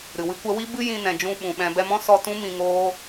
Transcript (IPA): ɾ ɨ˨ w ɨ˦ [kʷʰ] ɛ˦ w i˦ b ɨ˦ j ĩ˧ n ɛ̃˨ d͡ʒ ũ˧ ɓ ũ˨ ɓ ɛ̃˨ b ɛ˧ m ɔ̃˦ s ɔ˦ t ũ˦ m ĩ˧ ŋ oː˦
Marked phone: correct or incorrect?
incorrect: kʷ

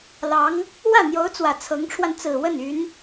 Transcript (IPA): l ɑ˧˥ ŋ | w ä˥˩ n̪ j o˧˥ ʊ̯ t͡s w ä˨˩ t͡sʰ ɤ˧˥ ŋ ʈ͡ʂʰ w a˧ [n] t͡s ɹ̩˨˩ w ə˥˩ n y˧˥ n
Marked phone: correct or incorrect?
correct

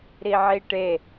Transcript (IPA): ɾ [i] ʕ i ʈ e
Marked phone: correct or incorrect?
correct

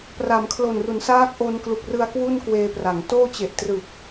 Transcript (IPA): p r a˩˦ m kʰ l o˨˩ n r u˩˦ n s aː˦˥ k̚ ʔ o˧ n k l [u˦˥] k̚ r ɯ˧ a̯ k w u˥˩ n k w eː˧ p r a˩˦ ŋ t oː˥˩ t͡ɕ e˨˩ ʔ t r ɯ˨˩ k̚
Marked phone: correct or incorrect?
incorrect: u˨˩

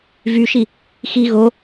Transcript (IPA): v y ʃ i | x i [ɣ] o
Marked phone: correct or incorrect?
correct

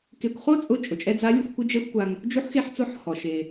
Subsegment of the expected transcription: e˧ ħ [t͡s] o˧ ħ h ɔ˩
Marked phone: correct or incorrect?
correct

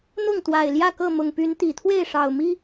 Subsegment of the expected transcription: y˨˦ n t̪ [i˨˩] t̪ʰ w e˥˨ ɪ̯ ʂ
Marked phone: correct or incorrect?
correct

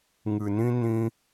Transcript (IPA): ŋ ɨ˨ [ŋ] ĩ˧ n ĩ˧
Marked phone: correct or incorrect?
incorrect: n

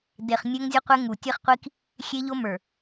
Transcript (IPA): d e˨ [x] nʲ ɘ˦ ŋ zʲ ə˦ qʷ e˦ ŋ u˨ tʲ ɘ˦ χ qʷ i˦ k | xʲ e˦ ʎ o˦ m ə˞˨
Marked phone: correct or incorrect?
incorrect: χ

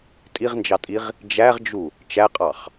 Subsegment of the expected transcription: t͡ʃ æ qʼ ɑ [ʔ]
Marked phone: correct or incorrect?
incorrect: χ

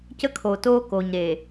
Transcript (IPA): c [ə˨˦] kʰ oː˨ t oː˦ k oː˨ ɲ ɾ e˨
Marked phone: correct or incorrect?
incorrect: ə˦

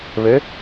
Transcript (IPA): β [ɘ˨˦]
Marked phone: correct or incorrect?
correct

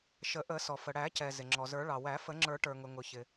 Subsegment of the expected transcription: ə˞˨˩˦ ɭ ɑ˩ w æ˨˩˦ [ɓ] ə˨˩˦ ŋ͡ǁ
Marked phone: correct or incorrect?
incorrect: f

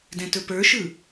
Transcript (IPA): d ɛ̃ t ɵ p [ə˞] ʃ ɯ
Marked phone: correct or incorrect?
correct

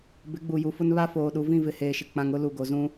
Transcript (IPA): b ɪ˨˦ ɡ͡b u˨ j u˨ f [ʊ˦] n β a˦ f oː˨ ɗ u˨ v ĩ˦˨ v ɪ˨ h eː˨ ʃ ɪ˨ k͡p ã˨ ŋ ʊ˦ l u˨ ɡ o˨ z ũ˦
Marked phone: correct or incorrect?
correct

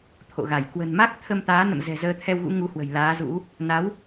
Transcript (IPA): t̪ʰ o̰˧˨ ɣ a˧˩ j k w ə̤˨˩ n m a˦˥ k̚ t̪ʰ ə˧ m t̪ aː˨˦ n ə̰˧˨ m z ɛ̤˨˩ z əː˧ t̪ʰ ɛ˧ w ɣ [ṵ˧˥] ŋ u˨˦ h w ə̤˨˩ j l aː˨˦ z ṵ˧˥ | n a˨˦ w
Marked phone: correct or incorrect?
correct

